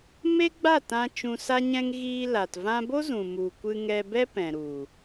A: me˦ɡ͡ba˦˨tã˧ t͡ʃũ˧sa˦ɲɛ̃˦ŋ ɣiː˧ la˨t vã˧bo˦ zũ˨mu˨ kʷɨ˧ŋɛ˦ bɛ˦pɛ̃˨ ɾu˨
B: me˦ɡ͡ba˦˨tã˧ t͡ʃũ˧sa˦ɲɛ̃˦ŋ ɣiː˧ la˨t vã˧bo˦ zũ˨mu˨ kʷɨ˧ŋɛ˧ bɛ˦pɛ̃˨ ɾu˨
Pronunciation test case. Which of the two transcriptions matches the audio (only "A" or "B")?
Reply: B